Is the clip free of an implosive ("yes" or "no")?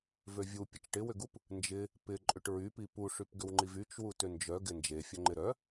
yes